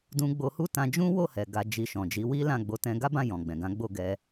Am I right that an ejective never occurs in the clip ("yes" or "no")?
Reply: yes